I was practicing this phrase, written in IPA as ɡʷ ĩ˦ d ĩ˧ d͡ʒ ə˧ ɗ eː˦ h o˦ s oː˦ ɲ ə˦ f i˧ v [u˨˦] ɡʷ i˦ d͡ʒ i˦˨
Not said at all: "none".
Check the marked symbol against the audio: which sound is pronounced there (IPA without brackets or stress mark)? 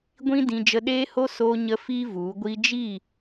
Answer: u˨˦